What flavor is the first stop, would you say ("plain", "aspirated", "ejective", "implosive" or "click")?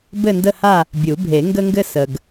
plain